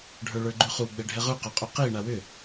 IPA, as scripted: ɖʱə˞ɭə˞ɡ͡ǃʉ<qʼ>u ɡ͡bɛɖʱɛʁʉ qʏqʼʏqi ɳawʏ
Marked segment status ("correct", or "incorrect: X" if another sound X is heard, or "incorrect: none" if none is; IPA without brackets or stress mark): incorrect: χ